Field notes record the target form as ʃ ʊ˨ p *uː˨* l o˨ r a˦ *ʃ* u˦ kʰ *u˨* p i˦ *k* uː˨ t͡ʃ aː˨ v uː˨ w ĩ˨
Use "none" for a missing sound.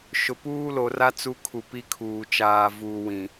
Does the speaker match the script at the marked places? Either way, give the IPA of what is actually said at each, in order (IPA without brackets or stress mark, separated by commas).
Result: uː˦, t͡s, u˨, kʰ